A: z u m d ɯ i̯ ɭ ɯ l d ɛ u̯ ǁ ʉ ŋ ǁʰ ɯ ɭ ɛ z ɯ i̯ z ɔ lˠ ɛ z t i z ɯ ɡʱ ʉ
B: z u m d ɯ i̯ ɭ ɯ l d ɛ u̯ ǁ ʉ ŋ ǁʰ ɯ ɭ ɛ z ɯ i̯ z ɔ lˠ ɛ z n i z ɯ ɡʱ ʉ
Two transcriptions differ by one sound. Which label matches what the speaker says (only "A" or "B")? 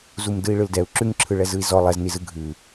B